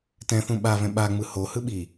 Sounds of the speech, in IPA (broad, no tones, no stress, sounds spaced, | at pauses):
t ɛ̃ θ ũ ɓ a v ɛ̃ ɓ a ŋ͡m ɯ h o h ɯ ɓ i